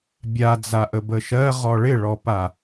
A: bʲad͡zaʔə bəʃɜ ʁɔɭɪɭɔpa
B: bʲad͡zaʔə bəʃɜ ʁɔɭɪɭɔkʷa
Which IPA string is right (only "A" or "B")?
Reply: A